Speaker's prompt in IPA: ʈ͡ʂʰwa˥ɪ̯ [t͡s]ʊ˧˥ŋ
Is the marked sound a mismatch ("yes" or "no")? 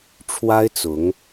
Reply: no